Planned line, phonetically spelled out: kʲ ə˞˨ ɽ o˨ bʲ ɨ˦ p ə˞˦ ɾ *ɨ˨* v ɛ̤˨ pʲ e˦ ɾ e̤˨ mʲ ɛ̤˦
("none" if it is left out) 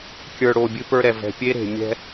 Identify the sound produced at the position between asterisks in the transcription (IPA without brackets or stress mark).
ɛ˨